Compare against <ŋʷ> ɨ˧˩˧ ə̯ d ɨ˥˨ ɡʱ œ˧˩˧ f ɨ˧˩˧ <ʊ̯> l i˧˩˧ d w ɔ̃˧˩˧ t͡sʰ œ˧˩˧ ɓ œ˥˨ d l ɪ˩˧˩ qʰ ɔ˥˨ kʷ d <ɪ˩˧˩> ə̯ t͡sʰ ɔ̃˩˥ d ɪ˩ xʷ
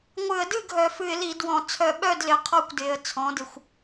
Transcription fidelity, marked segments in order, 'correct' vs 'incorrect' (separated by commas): correct, incorrect, correct